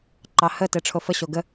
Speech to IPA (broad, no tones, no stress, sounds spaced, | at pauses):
ǃ ɑ h ə t e ʈ͡ʂʰ o f ə ɕ o ɡ ə